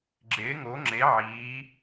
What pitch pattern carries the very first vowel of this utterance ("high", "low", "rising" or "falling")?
rising